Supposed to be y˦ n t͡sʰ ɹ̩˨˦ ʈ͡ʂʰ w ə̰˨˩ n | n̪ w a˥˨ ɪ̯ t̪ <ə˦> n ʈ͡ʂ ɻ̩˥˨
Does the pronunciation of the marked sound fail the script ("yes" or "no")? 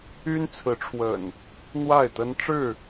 no